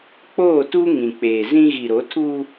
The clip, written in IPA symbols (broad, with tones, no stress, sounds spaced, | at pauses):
k͡p oː˦˨ t u˦ ŋ ĩ˨ k͡p eː˨ z ĩ˦ ɣ i˨ ɾ o˨˦ tʰ u˦